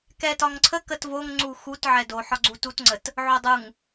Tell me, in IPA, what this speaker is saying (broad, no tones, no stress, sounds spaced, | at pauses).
k ɛ t ɒ ŋ ǀʰ ə k ə t v o ŋ ŋ͡ǀ u x u t ʕ ɛ d o ħ ɒ ɡ͡ǀ u t u t ŋ͡ǀ ə t | ʕ o dˤ u ŋ